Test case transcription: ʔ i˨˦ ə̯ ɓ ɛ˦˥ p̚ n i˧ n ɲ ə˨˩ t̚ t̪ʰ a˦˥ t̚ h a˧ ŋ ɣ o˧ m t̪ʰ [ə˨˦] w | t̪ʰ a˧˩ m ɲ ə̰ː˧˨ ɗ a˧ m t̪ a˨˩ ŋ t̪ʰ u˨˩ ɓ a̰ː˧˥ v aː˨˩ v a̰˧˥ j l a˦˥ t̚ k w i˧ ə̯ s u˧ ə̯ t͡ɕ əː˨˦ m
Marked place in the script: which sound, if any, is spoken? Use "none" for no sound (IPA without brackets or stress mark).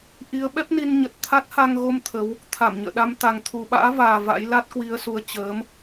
ə˨˦